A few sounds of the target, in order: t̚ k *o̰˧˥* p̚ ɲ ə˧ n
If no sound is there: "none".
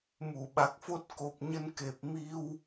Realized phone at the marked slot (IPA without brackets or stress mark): o˨˩